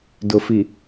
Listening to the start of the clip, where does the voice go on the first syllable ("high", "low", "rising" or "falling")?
low